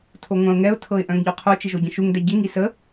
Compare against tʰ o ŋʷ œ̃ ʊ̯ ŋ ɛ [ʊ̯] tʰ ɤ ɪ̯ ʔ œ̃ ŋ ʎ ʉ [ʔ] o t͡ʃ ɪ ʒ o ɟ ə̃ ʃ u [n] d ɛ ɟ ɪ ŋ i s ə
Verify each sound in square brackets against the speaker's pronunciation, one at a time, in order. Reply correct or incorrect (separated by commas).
correct, incorrect, incorrect